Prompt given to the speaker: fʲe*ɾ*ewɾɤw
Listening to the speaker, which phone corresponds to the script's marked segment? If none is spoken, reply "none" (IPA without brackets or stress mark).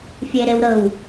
ɾ